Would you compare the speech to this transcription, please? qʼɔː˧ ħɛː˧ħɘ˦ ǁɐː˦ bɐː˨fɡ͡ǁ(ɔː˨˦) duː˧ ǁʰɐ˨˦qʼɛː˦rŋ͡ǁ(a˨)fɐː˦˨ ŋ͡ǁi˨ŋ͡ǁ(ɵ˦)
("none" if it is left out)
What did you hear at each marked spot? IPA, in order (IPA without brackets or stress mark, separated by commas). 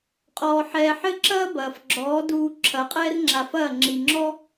ɔː˨˦, a˧, ɔ˦